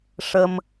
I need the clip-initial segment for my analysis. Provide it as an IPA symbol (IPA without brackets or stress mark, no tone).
ʂ